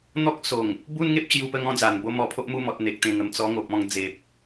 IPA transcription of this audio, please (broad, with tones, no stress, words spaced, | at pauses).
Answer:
n̪ɔ˦k̚ so˨˩ŋ | bu˦nŋe˦p̚t͡ɕju˧pə˧ ŋɔ̃˦d͡za˨˩n bo˥˧mɔ˧pʰo˦ʔ mu˧mɔ˨t̚ n̪e˨k̚t̪ẽ˨˩ŋə˨˩m t͡sɔ˧ŋo˨p̚ ɔ̃˧ŋd͡ze˨p̚